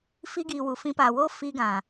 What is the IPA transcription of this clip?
fi˧ɡiː˨ wu˨fĩ˧paː˨woː˦ fi˧ɡã˨

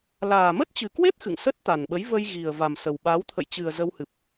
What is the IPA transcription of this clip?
laː˨˩mə˦˥t̚t͡ɕɨ˨˩kwe˦˥p̚ xɨ̰˧˨ŋ sə˦˥t̚ t̪a˨˩nɓə˨˦jvə˧j ɣi˨˩ə̯va˨˩m sə˨˩wɓa˨˦w t̪ʰə̰˧˨jt͡ɕɨ˨˩ə̯ zə˧whɨ˨˩p̚

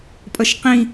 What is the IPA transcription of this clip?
pʼʌʃqĩ

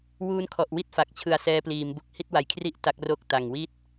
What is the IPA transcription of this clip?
wuː˦˥nkʰɔ˨˩ʔwi˥˩t̚ fa˨˩k̚ t͡ɕʰɯ˨˩a̯ sɛː˧pliː˩˦mbu˨˩k̚ hi˥˩t̚wa˨˩jkʰri˥˩ʔ ta˦˥k̚ro˥˩k̚ ta˨˩ŋwi˥˩t̚

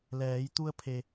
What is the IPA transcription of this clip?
lɛː˩˧j t̪u˧ə̯pʰe˩

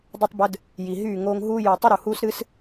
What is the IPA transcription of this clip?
dˤy˧tˤbə˧d | ji˨ɦyː˦˨ ŋoː˧ŋɦuː˦ ju˨ tˤɨ˦ ɾu˨huː˦sɾɨ˦s

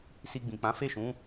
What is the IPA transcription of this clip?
si˧ɡ͡bĩ˨k͡pã˨˦ fe˦˨ʃũ˨˦

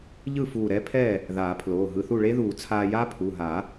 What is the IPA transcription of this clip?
ʎɯ˥˩ fuː˧˩ɾɛ˦˥pʰɛ˥˩ | ðaː˨˩˦pʰloː˩˧˩ ɦɯ˧θu˥˩ ɭe˦˥ðuː˨˩˦ t͡sʰaː˧ja˦˥pʰu˩˧˩ɦa˨˩˦

